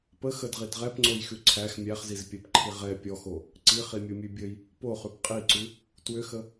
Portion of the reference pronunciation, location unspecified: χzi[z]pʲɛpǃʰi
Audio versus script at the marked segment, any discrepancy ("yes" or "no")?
no